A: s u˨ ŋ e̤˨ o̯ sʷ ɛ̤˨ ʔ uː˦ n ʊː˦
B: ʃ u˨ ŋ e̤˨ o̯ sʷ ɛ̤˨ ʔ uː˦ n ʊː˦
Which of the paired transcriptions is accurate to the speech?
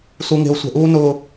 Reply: A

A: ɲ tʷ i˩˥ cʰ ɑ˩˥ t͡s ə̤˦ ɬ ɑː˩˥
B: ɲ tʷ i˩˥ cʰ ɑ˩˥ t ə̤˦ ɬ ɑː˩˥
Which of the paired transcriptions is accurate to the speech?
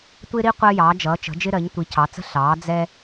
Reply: A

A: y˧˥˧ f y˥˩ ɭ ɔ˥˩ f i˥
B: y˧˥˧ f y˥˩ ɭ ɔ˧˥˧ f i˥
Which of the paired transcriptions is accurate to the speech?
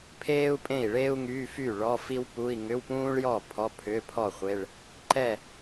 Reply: B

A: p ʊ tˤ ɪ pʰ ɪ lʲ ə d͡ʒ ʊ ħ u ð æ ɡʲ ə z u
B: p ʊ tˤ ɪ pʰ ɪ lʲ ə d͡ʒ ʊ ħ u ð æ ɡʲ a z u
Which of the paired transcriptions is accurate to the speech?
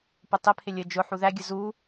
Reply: A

